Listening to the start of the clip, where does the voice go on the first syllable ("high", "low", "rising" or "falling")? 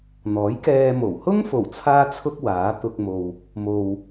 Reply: rising